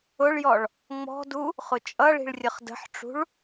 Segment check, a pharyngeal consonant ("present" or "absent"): present